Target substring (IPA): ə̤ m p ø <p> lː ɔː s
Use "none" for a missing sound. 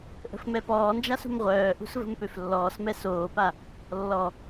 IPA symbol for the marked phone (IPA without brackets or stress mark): f